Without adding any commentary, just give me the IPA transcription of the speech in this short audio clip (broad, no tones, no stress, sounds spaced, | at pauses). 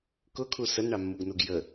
k ʊ kʰ u s ə n ɳ ɑ mː u ɡ n u ɡ j ə